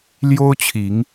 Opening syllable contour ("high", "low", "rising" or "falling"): high